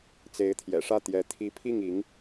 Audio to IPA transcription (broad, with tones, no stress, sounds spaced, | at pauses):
t͡s e˧˥ ɪ̯ t̪ʰ j ɛ̰˨˩ ʂ ä˥˩ t̪ j ɛ˧˥ t̪ʰ i˧˥ pʰ i˥˩ ŋ i˧˥ ŋ